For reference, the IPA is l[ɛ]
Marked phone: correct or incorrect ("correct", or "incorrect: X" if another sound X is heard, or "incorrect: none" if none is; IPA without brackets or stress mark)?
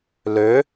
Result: incorrect: ø